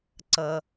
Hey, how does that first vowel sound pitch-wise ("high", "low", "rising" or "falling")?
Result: low